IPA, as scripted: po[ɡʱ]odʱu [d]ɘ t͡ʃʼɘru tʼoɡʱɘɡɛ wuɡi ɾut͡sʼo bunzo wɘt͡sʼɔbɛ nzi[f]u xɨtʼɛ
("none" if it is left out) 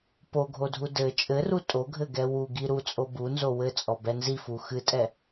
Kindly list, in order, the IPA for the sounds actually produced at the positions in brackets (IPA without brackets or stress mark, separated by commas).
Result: ɡʱ, d, f